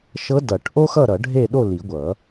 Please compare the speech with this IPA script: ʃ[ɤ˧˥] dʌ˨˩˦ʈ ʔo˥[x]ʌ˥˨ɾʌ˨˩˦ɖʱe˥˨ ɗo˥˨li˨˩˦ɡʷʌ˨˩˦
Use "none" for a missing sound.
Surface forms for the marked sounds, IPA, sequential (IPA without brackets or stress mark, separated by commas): ɤ˧˥, x